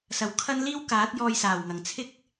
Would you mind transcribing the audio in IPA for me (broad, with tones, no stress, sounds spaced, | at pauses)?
s ɐ˨˩ w kʰ ɐ˥ n l iː˥ w k aː˨˥ t̚ j ɔː˧ j s aː˨˩ w ŋ ɐ˨˩ ŋ t͡sʰ ɪ˥ k̚